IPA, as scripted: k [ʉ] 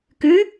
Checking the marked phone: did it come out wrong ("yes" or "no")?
no